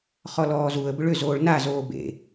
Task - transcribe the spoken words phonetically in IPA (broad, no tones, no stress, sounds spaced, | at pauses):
χ ɔ l ɔː z u ə̯ b ʏ ɭ ʏ z oː ɭ n a z oː b ḛ